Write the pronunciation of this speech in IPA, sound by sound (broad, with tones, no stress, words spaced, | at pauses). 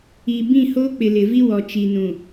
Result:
i˨ bĩ˦˨hoː˦ k͡pɪ˨lɪ˨vi˦wɔ˨ t͡ʃi˨nũ˨